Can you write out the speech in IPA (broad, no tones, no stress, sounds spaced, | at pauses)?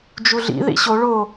d͡ʒ u ɮ ḭ ð ḭ ɕ o ɭ o